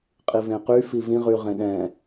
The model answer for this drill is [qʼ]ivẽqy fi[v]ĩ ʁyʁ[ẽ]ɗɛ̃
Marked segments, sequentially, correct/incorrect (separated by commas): correct, correct, correct